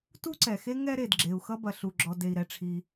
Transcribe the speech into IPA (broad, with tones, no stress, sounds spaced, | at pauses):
t u˥ ǀ ɛ˩ x e˥ ŋ ɛ˥ ɾ e˩ d ɡ͡ǁ e˩ u̯ x ʌ˥ b ɐ˩ ɬ u˩ ɡ͡ǁ ɔ˩ d e˩ i̯ ɾ ɛ˩ ʈ͡ʂʰ i˩